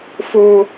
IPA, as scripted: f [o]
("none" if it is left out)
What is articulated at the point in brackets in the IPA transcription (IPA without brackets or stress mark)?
o